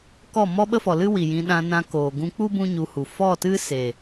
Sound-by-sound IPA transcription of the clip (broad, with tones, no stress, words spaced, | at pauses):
kɔ˦˨ mɔ˦ɓə˦fɔ˨lɨ˦ wi˨jĩ˧ɗã˧ nã˧koː˨ ɡũ˧k͡pu˦ bũ˦ɲu˧hu˨ fɔ˦˨tɨ˦ se˨